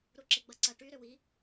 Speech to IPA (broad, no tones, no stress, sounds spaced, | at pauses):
ɾ u ǁ ɪ ɡ͡b ɐ ǀ ɐ ʈ y ɾ ʏ w i